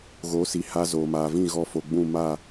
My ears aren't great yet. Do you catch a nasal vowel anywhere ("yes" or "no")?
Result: yes